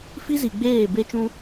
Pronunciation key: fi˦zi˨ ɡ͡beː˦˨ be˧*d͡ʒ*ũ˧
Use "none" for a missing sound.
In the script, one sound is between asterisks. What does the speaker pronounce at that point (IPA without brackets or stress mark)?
t͡ʃ